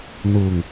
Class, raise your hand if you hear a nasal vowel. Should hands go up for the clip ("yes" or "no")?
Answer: no